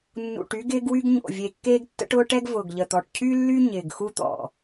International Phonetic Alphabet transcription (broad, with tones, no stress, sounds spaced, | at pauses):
nː ṵ˨˩ ʈ y˦ ɡ ɪː˦ ɡ w y˦ ɡ ɲ o̰˨˩ vʲ e˨˩ kː eː˦ ɡ tː ə̰˦ ʈ ʊː˦ ʈ ɛ˦ ɡ v ʊː˨˩ ɡ ʎ ə˨˩ t̪ ɔ˨˩ ʈ cʰ y˦ lː y˦ ɲ ɪː˨˩ ɡ x u˦ t̪ ɔ̰˨˩